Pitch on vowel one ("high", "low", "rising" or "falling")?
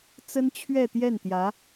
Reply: high